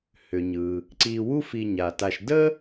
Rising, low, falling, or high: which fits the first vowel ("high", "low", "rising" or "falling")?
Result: low